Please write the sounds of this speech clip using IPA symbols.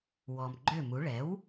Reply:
w ɔ˩ m ɡ͡ǃ ø˥˩ m u˩˥ ɭ ɛ˩˥ w

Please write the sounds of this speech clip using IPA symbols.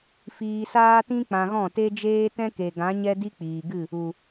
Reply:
f iː˧ s aː˦ t ĩ˦ k͡p ã˧ ɣ ɔ̃˦˨ t e˦ d͡ʒ eː˦ t ɛ̃˦ k e˨ ɡ ã˨˦ ɲ ɛ˦ d i˦ k͡p iː˨ ɡ ɨ˦˨ | u˨

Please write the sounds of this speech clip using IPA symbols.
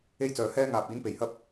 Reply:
e˥ j t͡s œː˨ h ɛː˥ ŋ aː˨ p̚ iː˨˥ n p e˨˩ j h ɐ˥ p̚

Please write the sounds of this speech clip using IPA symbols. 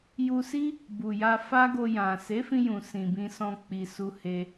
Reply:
j u˧ s i˦ | b u˨ j a˧ f a˦ ɡ o˧ j ã˨ s e˨˦ f ĩ˧ j ũ˨ s ĩ˨ b ĩ˧ s ɔ̃˧ k͡p i˧ s u˦ h e˧

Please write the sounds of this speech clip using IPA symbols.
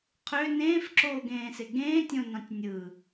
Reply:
qʰ ø n ẽː f ǁ oː ɡ ẽː s e ɡ ẽː tʲ õ n ɑ̃ tʲ nʲ ɯ

